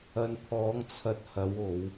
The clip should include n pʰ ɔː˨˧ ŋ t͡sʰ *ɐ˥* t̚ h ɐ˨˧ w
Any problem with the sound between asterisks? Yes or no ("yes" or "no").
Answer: yes